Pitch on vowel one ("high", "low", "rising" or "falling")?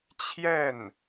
falling